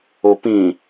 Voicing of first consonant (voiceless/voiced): voiceless